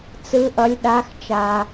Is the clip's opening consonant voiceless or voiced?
voiceless